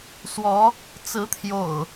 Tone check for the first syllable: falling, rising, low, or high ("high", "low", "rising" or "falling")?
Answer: rising